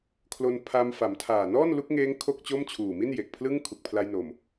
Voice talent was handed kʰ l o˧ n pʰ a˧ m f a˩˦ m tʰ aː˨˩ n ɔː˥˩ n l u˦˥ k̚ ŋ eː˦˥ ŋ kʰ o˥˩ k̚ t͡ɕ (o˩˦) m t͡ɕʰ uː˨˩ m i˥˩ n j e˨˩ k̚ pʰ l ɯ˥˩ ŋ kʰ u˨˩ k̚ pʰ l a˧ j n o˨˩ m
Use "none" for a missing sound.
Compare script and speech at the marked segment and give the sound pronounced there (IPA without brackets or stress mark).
o˥˩